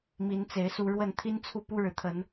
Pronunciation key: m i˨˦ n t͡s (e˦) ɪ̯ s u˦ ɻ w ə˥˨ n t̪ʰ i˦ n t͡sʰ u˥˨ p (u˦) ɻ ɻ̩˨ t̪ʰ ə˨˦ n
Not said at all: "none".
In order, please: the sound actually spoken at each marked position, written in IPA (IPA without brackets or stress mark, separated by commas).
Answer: e˨˦, u˦